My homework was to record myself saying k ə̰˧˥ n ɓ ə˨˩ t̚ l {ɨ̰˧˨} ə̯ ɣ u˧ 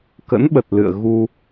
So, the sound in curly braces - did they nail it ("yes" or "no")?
yes